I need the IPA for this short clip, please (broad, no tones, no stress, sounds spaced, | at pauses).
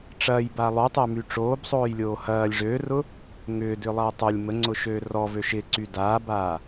ʈ͡ʂ ɐː j b a lˠ o tˤ ɪː m y ʈ͡ʂ oː b sˤ oː j lʲ oː h ɐː lʲ ʐ øː r ʊ | ŋ ʏː d ʏː lˠ ɐː tˤ o lʲ m ə ŋ͡ǀ ʊ ʃ øː r ɔ v ø ʃ ɪ ǀ y d aː b aː